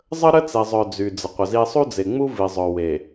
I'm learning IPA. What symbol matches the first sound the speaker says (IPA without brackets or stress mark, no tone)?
zˤ